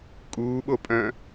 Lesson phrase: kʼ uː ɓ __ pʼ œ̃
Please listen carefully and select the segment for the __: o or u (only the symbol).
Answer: o